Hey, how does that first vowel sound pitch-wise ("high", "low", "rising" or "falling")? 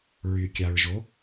low